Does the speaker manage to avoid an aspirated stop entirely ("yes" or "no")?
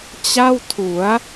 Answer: no